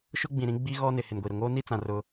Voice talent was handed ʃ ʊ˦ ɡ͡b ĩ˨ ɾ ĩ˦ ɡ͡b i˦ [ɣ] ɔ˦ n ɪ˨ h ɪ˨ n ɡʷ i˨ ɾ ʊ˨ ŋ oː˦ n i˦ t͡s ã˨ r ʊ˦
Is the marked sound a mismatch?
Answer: no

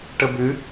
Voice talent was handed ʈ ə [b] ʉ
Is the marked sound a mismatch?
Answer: no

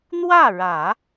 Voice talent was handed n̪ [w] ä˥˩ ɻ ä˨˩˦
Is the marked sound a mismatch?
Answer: no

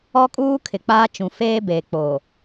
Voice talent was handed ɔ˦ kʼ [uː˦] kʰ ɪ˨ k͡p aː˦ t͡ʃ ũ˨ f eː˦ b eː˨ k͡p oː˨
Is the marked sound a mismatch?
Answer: no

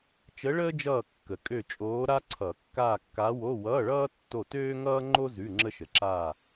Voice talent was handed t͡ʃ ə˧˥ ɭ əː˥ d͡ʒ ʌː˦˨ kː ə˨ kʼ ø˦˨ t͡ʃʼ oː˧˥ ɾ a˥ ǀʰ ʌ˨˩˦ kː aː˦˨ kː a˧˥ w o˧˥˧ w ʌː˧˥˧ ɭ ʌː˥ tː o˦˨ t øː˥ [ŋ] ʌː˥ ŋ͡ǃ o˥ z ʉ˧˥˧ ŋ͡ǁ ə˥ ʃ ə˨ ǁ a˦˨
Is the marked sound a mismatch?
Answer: no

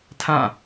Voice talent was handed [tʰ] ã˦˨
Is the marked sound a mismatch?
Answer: no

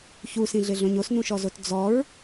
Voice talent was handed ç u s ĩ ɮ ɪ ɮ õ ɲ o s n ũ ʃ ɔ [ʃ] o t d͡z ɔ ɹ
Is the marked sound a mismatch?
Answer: yes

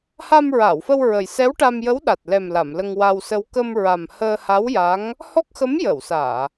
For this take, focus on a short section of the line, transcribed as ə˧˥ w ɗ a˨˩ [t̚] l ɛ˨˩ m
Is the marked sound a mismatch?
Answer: no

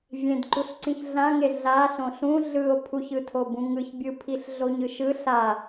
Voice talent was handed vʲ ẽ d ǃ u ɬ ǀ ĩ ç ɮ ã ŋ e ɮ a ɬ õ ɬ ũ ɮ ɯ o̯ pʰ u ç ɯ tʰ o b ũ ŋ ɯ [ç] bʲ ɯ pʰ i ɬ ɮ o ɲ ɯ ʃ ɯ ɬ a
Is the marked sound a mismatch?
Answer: no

